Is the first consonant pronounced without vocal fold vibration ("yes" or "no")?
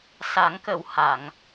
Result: yes